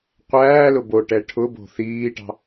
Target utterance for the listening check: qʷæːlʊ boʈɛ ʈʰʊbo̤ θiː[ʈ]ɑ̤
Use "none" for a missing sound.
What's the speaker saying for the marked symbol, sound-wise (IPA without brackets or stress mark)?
ʈ